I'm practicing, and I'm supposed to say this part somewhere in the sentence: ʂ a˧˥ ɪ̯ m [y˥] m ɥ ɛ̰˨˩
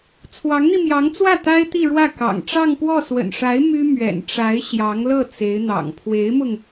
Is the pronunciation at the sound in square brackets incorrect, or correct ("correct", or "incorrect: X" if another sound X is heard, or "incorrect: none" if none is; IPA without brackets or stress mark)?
correct